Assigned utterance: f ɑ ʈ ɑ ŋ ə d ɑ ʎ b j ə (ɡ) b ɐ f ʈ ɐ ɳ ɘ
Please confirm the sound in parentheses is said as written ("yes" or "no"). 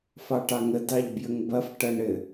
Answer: no